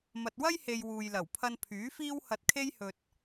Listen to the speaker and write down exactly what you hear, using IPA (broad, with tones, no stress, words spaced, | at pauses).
mɐ˨t̚wɐ˥jhe˨j wuː˨jlɐ˨˩wpʰɐ˧n pʰyː˨˥fiː˥whɐ˧t̚ kʰe˥jhɵ˨t̚